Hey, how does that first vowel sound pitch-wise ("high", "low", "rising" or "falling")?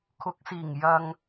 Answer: low